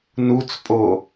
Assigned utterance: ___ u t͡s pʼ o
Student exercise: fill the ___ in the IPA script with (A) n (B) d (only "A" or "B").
A